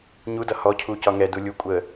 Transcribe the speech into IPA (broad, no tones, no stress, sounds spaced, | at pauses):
ɲ u d ʌ h ɔ cʰ u c ɒ ŋ ɛ d u lʲ u kʷʼ ə